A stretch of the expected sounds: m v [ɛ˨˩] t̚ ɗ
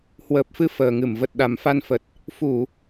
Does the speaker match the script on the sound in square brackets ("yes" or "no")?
no